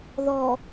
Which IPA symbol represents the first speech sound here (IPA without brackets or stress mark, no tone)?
ð